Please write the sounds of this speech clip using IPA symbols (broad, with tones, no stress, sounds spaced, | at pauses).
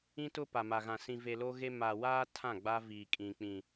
ĩ˦ t ʊ˦ p a˨ m a˨ ɣ ã˨ s ĩ˨ v e˨ l o˦ ɣ e˦ m a˨ w aː˦ tʰ ã˦˨ ɡ͡b a˦ v i˨ kʼ ĩ˨ k͡p ĩ˨